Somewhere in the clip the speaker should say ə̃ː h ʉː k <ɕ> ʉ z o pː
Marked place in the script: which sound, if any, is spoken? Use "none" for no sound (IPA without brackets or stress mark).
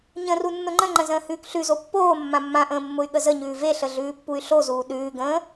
ɬ